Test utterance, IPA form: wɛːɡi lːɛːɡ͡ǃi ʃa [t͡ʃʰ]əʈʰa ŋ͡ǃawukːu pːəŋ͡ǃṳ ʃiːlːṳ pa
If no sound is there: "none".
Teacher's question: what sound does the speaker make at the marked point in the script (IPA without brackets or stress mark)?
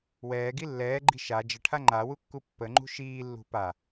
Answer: d͡ʒ